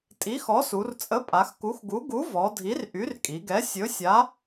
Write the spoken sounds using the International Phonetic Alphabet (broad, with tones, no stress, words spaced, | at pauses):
tʼi˨˥xɔ˨˥su˩˧r t͡sʼə˨˥pʼa˩˧x ku˨˥xɡu˨˥ ɡu˨˥vɔ˩˧ dʱi˨˥rʔy˨˥rkʼi˩˧ɡɛ˨˥ sʲɵ˨˥sʲa˨˥